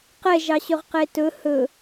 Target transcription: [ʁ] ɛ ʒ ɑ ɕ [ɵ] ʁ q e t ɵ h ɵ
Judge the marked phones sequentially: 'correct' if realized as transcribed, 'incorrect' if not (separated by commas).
incorrect, correct